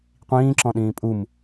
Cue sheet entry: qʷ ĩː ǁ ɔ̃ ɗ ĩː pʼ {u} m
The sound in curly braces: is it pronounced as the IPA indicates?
yes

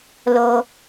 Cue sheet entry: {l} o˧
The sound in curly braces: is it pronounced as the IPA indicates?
yes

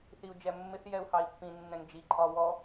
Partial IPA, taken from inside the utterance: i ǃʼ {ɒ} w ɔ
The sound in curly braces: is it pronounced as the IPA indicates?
yes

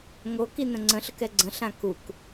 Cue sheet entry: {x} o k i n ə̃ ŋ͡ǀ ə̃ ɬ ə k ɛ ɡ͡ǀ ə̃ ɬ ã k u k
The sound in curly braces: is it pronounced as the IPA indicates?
no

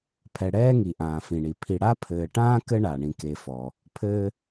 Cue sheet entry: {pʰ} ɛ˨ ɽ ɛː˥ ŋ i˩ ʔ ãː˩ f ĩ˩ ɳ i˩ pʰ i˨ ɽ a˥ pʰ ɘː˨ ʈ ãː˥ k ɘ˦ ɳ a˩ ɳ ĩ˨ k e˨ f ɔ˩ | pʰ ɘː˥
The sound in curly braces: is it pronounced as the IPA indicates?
yes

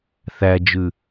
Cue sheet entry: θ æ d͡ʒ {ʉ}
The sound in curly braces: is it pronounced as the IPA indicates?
yes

